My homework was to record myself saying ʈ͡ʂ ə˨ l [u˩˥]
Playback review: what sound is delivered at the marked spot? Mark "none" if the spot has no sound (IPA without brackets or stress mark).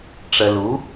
u˩˥